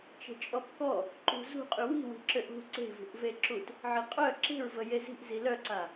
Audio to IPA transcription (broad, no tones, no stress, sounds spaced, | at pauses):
t͡ʃ e̤ t͡ʃʼ ɔ p k ɔ | ǃ ṳ z ṳ qʼ y w i̤ w i̤ ǁ ø ʔ ṳ ǀ e̤ v ṳ ʔ v e ǁ u t | ʕ i qʼ œ ǁ e̤ ɹ v ə j e z i̤ ʔ z i l œ ǀ a